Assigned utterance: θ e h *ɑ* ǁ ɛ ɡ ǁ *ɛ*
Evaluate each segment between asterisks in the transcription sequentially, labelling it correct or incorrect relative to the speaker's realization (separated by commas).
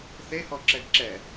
incorrect, correct